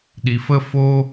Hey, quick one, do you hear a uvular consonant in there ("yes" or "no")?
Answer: no